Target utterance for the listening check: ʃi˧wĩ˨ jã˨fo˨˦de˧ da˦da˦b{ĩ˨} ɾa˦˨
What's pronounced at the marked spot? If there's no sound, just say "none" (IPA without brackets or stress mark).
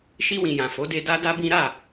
ĩ˦